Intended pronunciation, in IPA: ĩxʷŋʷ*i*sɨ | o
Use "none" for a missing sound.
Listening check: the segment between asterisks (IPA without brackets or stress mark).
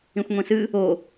ĩ